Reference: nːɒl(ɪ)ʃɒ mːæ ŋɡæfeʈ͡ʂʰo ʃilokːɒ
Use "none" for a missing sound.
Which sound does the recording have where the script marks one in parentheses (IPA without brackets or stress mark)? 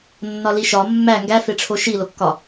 i